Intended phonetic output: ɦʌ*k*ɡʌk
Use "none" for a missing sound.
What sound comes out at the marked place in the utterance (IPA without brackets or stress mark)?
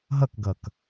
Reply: k